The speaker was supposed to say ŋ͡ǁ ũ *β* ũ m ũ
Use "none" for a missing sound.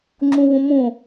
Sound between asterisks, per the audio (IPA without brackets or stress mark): β